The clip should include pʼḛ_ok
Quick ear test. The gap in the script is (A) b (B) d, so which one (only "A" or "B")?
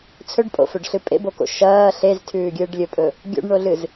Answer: A